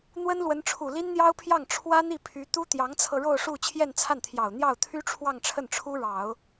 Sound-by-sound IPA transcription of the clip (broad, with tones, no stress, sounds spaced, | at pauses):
n̪ w ə˥ n l w ə˧˥ n ʈ͡ʂʰ u˨˩ l i˥ n n̪ j ɑ˥ ʊ̯ pʰ j ɑ˥˩ ŋ ʈ͡ʂʰ w ä˥ n̪ i˥˩ pʰ y˧˥ t̪ u˥ t̪ j ɑ˧˥ ŋ t͡sʰ ɤ˧ ɻ o˥˧ ʊ̯ ʂ u˥˧ t͡ɕʰ j ɛ˥˧ n t͡sʰ a˥˩ n t̪ʰ j ɑ˨˩ ʊ̯ n̪ j ɑ˥˩ ʊ̯ t̪ʰ y˥ ʈ͡ʂʰ w ɑ˥˧ ŋ ʈ͡ʂʰ ə˥˩ n ʈ͡ʂʰ u˥ ɻ ɑ˨˩˦ ʊ̯